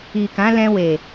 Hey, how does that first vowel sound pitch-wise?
low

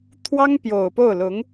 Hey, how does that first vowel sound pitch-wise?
high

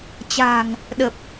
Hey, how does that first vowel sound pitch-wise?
low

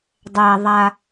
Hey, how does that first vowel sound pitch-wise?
low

